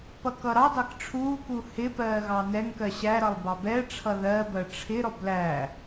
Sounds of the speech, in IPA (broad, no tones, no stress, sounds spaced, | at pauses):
p ʌ k ʌ ɾ ɑ d ɑ k ʈ͡ʂʰ uː k u h ɪ p ɜː ɣ ɑ n ɛ ŋ k ɜ ɕ æ ɾ ʌ lˠ b ɑ b ɛ ʈ͡ʂʰ ʌ ð ɜ b ɜ ʈ͡ʂʰ ɪ ɾ ɔ b l æ